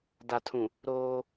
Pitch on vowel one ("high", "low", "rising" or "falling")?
low